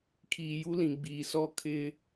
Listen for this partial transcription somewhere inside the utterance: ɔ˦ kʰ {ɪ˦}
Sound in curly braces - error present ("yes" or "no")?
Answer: no